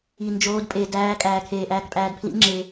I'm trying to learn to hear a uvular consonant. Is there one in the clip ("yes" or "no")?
no